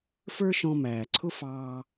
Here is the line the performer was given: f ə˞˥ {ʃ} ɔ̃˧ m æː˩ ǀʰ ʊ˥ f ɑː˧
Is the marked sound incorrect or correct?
correct